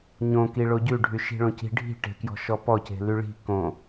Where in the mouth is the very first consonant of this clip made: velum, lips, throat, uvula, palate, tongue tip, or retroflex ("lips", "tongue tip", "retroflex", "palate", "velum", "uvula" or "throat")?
palate